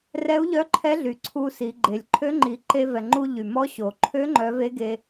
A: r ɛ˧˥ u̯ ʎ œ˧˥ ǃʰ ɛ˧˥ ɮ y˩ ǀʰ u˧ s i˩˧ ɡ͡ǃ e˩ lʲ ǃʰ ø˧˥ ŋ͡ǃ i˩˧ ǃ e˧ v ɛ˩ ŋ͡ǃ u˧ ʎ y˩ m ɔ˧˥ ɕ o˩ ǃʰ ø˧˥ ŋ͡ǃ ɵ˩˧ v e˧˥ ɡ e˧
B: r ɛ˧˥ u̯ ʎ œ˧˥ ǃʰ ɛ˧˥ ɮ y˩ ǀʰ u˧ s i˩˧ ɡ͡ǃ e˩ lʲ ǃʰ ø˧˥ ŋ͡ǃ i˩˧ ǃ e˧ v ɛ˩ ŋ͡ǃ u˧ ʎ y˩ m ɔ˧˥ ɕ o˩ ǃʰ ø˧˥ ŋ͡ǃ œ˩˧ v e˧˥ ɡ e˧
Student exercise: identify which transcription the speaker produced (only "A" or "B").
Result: B